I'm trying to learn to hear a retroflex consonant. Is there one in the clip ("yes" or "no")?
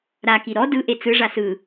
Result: yes